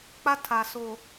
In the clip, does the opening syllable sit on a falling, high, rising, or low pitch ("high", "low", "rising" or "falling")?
high